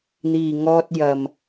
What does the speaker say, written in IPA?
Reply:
n̪ iː˨ ŋ ɔː˧ t̚ j ɐ˨ m

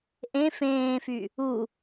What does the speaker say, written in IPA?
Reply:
ʔ ẽ f ẽː f y | u

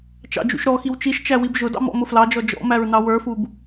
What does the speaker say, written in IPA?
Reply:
t͡ʃ ɑ̰ d͡ʒ ṵ ʃ ɾ ɔ x i w t͡ʃ i ʃ t͡ʃ æ w i b ʒ ʊ d ɑ̰ m ɔ̰ m ʊ f l ɑ d͡ʒ ɔ d͡ʒ ɔ̰ m æ ɹ n ɑ w ə˞ f u b

